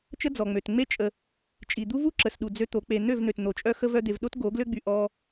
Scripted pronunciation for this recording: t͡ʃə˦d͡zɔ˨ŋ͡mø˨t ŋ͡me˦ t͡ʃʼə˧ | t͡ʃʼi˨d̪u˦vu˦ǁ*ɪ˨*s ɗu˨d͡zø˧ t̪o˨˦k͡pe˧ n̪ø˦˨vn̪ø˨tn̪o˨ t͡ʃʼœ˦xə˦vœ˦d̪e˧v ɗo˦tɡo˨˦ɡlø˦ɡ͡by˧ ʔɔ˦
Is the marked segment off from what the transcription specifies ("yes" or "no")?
yes